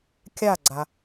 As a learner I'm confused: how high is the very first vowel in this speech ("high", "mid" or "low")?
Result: low